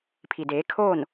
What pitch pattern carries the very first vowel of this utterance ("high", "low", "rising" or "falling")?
low